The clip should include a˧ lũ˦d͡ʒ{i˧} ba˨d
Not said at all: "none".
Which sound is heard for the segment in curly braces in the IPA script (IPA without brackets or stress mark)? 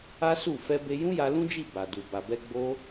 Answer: i˦˨